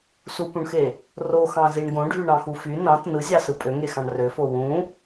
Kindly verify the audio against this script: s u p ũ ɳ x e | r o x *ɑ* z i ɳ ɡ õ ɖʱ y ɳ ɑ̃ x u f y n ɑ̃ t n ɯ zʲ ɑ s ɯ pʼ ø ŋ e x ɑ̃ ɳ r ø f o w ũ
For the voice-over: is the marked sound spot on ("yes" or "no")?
no